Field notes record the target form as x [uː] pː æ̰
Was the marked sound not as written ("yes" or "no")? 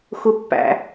yes